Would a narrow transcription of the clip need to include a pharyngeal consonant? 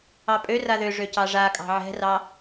yes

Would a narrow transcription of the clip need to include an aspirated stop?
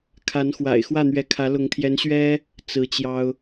yes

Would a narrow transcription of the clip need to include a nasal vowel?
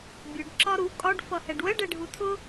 no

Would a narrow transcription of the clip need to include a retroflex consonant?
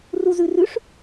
yes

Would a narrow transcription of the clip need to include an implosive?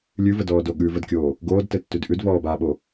yes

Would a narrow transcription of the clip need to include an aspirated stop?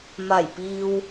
no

